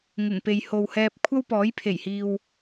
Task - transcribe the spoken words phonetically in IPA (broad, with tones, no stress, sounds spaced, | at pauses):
ŋ ɪ˨˩ ŋ p e˨ j h o˨ w h ɛː˧ p̚ kʷʰ ɐ˥ w p ɔː˨˥ j pʰ e˨˩ j h iː˨ w